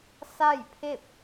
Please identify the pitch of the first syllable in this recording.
falling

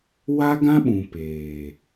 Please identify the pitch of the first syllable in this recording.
high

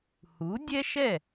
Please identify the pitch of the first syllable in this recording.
rising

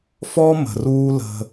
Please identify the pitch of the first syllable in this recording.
high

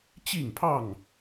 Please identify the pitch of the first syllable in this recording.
falling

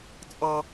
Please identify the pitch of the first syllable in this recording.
high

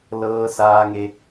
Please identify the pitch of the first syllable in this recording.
low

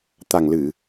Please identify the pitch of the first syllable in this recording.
low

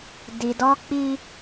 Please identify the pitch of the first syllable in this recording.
low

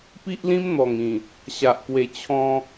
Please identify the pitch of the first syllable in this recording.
high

